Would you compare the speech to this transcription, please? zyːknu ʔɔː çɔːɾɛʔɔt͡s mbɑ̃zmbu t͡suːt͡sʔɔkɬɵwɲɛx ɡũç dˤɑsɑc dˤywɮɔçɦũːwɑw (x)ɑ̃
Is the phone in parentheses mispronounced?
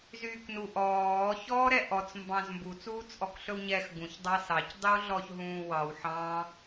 yes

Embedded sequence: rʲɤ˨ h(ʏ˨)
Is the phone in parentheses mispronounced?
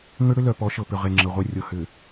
no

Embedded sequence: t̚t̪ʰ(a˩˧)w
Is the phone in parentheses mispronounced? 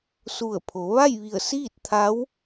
yes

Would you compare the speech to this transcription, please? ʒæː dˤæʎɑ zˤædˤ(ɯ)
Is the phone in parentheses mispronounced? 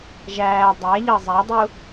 yes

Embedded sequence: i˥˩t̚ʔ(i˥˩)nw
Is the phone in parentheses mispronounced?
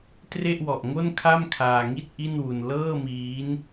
no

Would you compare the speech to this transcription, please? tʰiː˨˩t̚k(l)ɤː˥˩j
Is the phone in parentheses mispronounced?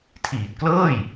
no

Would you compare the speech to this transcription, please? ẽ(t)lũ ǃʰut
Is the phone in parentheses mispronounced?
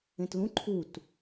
no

